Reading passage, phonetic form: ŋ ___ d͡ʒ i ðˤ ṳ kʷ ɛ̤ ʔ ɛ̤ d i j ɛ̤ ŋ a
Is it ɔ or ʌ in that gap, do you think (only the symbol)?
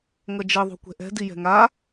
ʌ